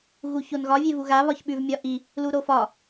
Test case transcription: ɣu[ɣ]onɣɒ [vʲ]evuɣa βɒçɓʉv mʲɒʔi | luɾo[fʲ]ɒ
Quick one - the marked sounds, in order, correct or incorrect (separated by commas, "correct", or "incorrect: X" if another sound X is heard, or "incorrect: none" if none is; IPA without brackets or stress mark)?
incorrect: ç, correct, incorrect: f